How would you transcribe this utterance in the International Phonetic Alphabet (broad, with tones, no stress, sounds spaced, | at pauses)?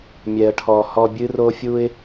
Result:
mʲ ɛ˨ ə̯ ʈʰ ɔ˨ h ɔ˨ bʲ ɨ˦ r o˦ fʲ u˦ ɪ̯